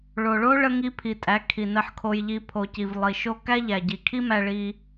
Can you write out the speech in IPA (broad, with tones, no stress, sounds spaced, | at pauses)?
ɭ o˨ ɭ o˦ ɭ ə˧ ŋ i˧ pʰ i˨ tʼ æ˨˦ kʰ i˨ n ə˧ ħ kʰ o˧ j ʎ i˧ pʰ o˨ c i˨ v lˠ i˨ ʃ o˦ k æ˦ ʎ æ˨ ɟ i˨ kʰ i˦ m æ˧ ɭ i˧